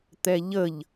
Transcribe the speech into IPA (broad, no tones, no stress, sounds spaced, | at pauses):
t̪ ɛ ʎ ə ʎ